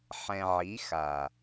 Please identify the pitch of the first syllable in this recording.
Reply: low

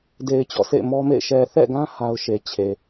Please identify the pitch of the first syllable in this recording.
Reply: low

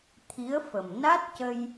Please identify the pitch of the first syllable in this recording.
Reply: rising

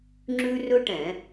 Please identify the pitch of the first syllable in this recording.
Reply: high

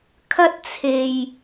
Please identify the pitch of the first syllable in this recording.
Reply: high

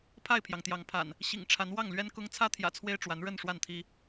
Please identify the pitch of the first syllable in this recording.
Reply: falling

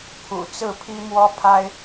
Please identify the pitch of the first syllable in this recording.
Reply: low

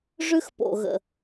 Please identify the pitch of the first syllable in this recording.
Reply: high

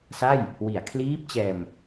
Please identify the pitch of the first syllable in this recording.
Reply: falling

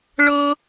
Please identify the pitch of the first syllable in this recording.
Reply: high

